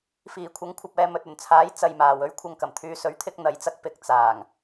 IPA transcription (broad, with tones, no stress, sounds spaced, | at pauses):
f iː˨˩ kʷʰ ɐ˨˥ ŋ kʷʰ ɐ˨ p̚ ɛː˨ m ɵ˨ t̚ ɵ˨˩ n t͡sʰ aː˨˥ j t͡s ɐ˧ j m aː˨ w ɵ˥ ɥ kʷʰ ɐ˧ ŋ k ɐ˨˩ m t̪ʰ yː˧ s ɵ˨˥ ɥ t̪ʰ ɪ˧ k̚ n̪ ɐ˨˥ j t͡s ɐ˧ k̚ p ɪ˨ k̚ t͡s aː˨˩ ŋ